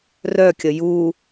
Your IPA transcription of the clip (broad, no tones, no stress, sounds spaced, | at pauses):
r œ kʲ ə j u